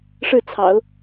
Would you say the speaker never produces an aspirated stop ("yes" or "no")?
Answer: no